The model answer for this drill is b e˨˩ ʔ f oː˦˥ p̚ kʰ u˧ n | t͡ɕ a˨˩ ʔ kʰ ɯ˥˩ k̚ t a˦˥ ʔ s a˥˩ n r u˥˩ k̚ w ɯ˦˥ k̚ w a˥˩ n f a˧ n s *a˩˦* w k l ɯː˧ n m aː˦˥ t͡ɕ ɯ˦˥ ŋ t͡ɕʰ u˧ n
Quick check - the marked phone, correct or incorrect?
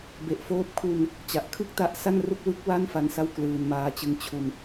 incorrect